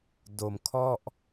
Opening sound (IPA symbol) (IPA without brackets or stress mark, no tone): d